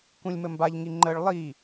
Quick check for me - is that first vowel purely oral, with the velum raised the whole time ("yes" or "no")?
no